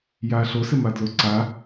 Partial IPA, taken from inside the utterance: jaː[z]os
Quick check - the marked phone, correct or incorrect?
incorrect: ɬ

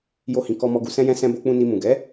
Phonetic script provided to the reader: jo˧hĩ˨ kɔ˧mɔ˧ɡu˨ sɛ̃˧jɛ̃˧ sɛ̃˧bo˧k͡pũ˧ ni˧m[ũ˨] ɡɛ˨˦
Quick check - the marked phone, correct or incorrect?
correct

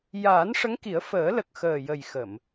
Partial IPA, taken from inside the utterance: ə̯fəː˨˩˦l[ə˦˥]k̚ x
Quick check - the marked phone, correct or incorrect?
incorrect: ə˨˩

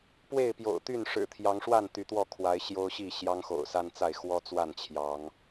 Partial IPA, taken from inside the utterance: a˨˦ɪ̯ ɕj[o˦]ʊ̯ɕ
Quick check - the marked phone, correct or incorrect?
correct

